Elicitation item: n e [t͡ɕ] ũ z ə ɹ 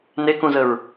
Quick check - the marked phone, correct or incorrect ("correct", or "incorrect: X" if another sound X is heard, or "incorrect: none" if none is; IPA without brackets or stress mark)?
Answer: incorrect: k